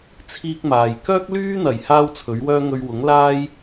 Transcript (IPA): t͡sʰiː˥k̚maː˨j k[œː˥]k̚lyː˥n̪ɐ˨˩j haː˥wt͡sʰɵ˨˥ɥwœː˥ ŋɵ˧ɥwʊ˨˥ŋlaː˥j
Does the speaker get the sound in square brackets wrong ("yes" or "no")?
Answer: no